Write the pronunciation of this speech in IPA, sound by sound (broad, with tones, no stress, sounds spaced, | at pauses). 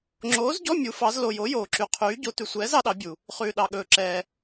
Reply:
ŋ͡ǁ oː˨˥ z ɟ ɔ˧˥˧ mʲ u˨˥ f ɑ˨˥ z l o˨ j o˨˥ j oː˨ ǁ y˨ qʰ yː˨˥ ɟ o˨˥ t ʉ˨ sʷ ɛː˨˥ z ɑ˨˥ ɗ ɑ˨˥ bʲ u˨ | χ ʉː˨ ɗ ɑ˨ ɠ ɵː˨ ǁ ɛː˨